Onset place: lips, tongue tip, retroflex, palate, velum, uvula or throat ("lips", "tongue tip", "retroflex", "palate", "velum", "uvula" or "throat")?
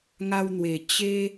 velum